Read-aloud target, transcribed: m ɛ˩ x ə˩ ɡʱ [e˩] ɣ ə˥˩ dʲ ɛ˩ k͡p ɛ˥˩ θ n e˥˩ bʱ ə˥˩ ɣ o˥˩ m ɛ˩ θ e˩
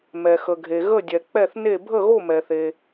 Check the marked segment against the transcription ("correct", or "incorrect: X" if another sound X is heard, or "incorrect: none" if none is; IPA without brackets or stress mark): correct